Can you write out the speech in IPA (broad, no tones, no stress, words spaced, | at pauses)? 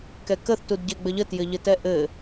kɛkəθ tudɟɛɡ͡bəʎə tjɘʎɘtɛʔɘ